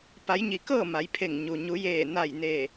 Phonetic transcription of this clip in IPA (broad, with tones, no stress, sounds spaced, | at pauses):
p a˩˧ j ɲ i˩ k ɤː˥˨ m a˩˧ j pʰ e˧˩ ŋ ɲ u˩ ɲ u˩˧ j eː˧˩ n a˧˩ j n eː˧˩